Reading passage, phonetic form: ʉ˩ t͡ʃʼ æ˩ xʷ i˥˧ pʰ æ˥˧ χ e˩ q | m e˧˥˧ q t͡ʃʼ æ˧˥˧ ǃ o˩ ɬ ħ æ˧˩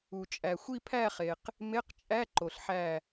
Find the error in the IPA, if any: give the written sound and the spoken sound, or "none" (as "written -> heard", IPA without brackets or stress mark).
ʉ˩ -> u˩